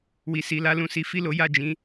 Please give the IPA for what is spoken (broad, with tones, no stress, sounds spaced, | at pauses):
w i˨ s i˨ l a˧ l ũ˨ s i˨˦ f i˦˨ l o˨˦ j a˦˨ d͡ʒ ĩ˨˦